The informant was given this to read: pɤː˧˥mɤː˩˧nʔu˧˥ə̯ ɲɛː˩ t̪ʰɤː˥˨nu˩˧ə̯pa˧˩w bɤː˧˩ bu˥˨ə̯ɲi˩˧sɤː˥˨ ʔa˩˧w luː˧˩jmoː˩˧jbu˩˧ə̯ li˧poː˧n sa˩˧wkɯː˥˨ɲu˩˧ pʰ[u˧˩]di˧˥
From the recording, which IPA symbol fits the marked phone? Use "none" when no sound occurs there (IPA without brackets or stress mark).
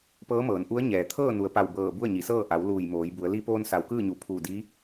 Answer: uː˧˩